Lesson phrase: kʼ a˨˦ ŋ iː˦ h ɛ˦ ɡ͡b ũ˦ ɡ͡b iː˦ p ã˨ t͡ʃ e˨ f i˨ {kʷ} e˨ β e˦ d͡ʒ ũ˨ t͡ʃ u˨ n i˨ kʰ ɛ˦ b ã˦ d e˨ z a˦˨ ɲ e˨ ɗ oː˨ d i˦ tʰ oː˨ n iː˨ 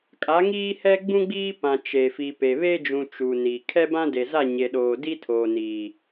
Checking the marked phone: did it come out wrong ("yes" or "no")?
yes